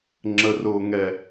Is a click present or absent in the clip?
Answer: present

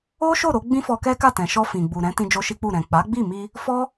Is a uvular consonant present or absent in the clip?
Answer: absent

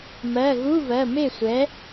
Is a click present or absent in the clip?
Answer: absent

